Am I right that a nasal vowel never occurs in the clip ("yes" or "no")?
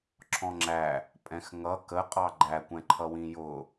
no